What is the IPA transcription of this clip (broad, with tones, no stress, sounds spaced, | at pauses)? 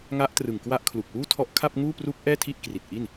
ŋ a˦˥ ʔ t r ɯ˨˩ ŋ k w a˦˥ ʔ kʰ l u˨˩ k̚ w uː˥˩ tʰ ɔ˦˥ ʔ kʰ a˥˩ p̚ ŋ uː˥˩ p r u˦˥ k̚ ʔ ɛː˥˩ tʰ i˥˩ ʔ k r i˨˩ t̚ ʔ i˥˩ n